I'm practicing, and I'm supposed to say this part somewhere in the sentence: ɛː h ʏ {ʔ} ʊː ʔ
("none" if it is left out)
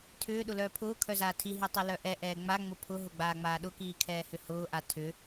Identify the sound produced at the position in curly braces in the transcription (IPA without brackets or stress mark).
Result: h